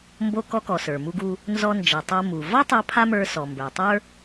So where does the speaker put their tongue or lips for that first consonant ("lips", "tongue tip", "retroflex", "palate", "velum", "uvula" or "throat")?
lips